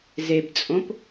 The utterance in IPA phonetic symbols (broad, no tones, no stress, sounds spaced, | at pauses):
z e b t͡sʼ õ p